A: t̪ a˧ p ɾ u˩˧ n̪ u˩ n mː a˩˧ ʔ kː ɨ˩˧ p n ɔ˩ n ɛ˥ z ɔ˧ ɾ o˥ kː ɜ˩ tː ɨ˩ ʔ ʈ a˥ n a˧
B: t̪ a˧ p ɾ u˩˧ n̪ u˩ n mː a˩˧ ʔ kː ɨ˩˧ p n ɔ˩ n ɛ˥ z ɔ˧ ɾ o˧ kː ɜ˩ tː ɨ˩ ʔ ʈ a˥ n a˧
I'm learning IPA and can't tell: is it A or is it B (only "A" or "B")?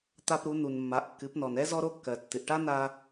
B